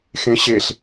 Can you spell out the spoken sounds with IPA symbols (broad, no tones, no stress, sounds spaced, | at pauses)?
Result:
x ẽ ɕ e ɬ